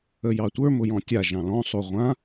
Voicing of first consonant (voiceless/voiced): voiced